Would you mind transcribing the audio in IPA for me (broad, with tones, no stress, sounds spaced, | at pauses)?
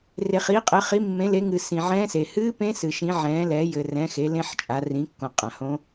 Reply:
r e˨ χ i˨˦ qʼ ɘ˨˦ χ i˨˦ mː ẽ˨˦ l e˨˦ ŋ ɨː˨ s ĩ˨ ʕ ɛ̃ː˦˥ s e˨ h ɨː˦˥ p ẽ˦˥ s ɨ˨ ʃ ĩ˨˦ ʕ ɛ̃ː˨˦ l ɛ˨˦ j ɘ˨ r ɛ̃˨˦ x e˨˦ l ẽ˦˥ ħ t͡ʃʼ a˨˦ r ĩ˨˦ kː õ˨ qʼ ã˨ h õ˦˥